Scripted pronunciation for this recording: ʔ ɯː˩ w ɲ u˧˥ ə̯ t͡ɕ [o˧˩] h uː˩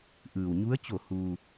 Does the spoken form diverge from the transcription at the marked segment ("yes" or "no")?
no